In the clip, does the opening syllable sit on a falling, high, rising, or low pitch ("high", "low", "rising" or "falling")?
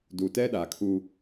low